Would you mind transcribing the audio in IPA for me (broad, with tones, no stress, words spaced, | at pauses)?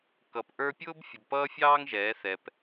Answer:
kʌ˨pʔə˞˦ pʲʊː˦bfʲʊ˨bpʌː˦fʲɑː˦ŋ ʒɛː˨˦θɛ˨p